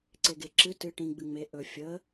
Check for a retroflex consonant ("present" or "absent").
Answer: present